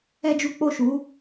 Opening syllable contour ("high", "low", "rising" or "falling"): high